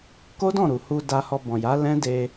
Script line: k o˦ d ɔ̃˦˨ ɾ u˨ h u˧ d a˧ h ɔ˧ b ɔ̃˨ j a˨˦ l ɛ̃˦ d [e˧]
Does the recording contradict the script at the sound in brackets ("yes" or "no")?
no